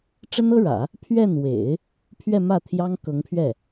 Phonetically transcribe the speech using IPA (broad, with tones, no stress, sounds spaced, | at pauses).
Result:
ʈ͡ʂ ə˥ n ɤ˥ ɻ ä̰˨˩˦ | pʰ ɥ ɛ˥˩ n w ḛ˨˩˦ ɪ̯ | pʰ ɥ ɛ˥˧ m ä˥˩ t̪ʰ j ɑ˥ ŋ k ɤ˧˥ ŋ pʰ ɥ ɛ˥˩